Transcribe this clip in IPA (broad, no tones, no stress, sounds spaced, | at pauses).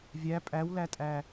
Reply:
vʲ æ pʼ æ w l æ tʼ æ